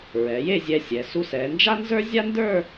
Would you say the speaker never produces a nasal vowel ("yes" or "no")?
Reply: yes